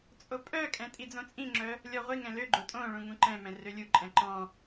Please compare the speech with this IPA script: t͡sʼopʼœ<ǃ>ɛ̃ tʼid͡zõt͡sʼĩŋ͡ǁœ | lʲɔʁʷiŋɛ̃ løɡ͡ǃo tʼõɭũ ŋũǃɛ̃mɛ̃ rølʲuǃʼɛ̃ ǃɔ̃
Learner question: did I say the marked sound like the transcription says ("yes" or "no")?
no